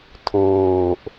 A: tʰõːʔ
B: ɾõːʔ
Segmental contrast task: A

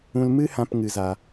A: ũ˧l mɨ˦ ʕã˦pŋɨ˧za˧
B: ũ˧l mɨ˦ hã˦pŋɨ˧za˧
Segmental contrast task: B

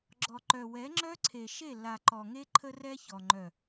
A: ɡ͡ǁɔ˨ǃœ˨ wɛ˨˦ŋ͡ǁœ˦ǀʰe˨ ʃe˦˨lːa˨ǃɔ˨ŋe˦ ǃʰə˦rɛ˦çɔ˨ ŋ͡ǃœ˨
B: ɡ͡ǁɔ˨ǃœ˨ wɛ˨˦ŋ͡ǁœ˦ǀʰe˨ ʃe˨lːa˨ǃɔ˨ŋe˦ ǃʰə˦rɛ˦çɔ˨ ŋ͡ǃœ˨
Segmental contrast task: A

